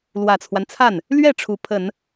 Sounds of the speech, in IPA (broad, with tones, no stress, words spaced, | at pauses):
lwä˨˩t͡sʰwa˦nt͡sʰa˥˩n | lɥɛ˥˩ ʈ͡ʂʰu˧˥pʰə˨˩˦n